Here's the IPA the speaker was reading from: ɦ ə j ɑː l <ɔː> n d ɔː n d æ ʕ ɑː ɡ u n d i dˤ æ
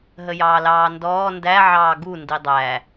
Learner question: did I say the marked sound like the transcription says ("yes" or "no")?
no